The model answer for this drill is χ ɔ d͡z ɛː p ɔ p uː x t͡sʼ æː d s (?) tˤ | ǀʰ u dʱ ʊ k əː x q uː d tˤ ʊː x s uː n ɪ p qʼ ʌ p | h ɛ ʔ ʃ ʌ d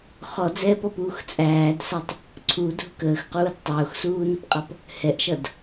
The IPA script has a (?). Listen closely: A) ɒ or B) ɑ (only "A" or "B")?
B